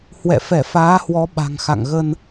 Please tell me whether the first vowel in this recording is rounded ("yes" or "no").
no